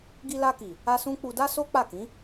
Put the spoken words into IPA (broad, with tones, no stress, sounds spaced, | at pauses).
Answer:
ɡ i˧ l a˧ k i˨ | a˦ s ũ˦ k͡p u˧ d a˦ s o˦ k͡p a˦˨ k ĩ˨˦